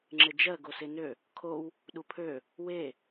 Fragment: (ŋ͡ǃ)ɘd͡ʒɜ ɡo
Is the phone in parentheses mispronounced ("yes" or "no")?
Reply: yes